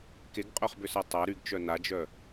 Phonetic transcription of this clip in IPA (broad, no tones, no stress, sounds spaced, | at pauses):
k e ɡ qʼ œ χ b ʏ s a tˤ a ɾ y ɡ t͡ʃ œ n a d͡ʒ œ